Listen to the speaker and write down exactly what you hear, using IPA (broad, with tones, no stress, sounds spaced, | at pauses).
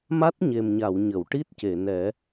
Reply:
m a˦˥ t̚ ɲ e˨˩ m ɲ a˨˩˨ w ɲ ə˨˩˨ w ʈ i˦˥ t̚ c e˨˩˨ n ɛ˨˩˦